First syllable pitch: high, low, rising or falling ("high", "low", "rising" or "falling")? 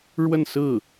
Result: falling